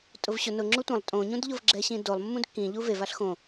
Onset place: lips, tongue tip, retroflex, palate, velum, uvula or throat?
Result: tongue tip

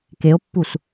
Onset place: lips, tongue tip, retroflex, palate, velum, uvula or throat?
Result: velum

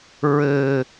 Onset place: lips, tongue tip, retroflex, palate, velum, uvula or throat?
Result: tongue tip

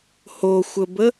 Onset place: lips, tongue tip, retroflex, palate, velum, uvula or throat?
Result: throat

